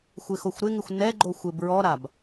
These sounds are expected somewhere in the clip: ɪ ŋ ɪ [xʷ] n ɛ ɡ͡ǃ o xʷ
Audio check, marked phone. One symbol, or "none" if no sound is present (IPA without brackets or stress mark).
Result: xʷ